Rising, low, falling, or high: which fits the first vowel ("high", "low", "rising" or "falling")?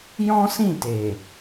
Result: high